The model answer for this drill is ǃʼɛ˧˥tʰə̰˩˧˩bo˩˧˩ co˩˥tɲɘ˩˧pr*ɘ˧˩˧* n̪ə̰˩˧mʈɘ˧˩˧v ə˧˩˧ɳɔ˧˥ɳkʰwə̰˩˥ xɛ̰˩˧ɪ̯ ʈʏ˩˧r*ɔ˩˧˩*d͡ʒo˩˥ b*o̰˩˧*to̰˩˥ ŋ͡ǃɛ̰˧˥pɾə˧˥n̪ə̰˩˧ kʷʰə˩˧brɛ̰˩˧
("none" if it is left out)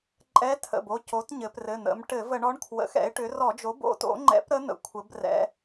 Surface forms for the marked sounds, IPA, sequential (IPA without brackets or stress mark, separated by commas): ɘ˩˧˩, ɔ˧˩˧, o̰˩˥